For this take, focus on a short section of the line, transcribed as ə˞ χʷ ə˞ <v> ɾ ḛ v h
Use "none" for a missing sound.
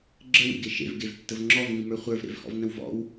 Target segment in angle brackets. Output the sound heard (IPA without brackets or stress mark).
v